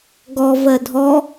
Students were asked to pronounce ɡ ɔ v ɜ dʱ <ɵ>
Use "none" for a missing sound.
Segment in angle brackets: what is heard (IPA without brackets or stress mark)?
ɔ